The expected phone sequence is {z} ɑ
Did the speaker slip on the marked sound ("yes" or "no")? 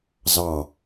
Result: no